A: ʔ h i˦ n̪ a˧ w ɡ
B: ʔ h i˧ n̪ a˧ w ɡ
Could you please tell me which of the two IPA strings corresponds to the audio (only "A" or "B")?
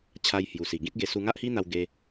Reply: A